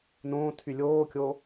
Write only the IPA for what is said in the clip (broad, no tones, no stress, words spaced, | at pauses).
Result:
nõːtʰy lʲoːkʲo